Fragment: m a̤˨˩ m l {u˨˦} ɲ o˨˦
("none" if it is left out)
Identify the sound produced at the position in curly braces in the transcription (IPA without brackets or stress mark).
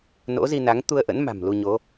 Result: u˧